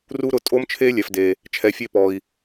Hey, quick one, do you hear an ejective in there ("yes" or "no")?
yes